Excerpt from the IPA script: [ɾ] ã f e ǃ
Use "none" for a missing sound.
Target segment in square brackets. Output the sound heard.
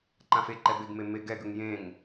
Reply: ǃ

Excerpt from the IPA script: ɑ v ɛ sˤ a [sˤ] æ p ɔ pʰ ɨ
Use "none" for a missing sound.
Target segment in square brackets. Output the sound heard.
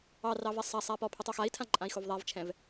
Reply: sˤ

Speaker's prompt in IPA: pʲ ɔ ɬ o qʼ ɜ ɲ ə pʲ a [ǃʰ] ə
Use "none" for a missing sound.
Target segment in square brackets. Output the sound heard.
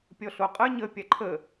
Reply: ǃʰ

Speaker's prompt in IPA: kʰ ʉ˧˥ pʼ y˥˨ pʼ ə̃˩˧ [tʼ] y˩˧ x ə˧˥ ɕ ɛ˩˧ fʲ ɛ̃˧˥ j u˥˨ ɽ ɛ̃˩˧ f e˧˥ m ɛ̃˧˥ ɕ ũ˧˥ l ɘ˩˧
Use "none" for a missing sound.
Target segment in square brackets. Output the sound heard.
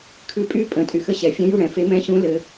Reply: tʼ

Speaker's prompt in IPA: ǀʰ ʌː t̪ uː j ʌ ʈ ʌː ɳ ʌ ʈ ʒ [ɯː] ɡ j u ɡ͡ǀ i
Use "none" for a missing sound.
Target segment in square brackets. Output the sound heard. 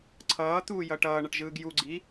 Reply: ɯː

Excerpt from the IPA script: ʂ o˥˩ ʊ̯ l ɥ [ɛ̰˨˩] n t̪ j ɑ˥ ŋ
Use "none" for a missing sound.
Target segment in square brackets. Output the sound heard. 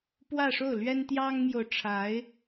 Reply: ɛ˥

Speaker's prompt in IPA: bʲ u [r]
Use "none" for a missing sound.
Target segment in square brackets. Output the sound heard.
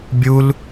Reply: l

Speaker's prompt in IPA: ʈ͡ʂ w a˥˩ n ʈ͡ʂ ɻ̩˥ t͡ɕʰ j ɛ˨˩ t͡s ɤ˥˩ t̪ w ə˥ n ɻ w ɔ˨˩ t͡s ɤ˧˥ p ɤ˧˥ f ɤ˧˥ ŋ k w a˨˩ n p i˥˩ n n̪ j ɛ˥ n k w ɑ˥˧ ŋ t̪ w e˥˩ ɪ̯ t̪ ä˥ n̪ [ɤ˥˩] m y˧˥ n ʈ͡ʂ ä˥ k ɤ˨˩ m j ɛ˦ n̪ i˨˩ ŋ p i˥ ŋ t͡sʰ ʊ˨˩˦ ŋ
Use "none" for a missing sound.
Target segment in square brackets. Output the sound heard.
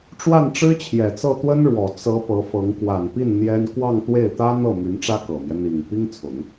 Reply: ɤ˥˩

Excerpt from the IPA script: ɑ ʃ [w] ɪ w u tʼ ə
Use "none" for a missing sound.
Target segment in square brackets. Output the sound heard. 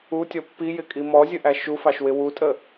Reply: w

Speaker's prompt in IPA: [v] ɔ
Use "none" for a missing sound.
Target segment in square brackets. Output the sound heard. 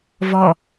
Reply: v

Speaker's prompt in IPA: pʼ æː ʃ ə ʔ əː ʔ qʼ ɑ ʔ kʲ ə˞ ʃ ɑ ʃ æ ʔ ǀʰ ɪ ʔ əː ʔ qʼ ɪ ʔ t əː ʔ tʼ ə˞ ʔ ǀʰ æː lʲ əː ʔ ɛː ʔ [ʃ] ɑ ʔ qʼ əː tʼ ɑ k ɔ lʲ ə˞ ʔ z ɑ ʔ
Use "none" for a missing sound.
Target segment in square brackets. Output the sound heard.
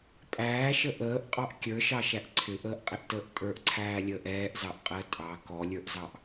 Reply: z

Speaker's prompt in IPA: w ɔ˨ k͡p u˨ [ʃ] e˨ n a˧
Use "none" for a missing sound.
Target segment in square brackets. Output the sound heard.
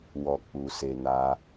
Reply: s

